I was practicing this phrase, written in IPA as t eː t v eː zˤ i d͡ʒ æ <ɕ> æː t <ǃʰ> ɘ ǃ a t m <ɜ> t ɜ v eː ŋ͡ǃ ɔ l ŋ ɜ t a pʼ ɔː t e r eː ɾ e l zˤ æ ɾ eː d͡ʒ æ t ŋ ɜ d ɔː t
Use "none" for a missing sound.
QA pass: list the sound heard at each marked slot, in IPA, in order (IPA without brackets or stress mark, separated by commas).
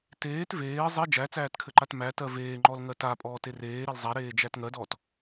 t͡s, kʰ, æ